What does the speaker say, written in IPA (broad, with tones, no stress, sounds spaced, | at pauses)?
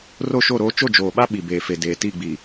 r o˦˨ ʃ o˦˨ ɾ oː˦ t͡ʃ o˦˨ d͡ʒ oː˨ ɓ a˦ ɓ i˨ b eː˨ f e˨ d eː˨ t i˦˨ ɡ͡b i˨